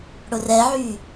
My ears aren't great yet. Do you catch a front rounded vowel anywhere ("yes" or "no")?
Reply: yes